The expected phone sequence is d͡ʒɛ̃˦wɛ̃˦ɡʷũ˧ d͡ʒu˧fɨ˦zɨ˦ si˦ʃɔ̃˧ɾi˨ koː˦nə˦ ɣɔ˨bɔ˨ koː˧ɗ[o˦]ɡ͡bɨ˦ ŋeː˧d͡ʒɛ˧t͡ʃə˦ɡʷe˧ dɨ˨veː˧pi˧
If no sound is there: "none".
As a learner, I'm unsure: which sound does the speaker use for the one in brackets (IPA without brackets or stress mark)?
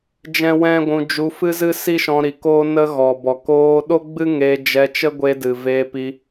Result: o˦